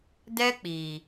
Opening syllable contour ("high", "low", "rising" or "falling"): high